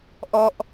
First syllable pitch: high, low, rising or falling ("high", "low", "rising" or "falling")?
falling